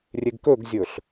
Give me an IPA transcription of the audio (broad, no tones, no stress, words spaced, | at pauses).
rʲeɡkɵɡzʲɵɬ